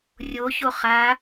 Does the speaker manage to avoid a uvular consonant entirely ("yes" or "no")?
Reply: no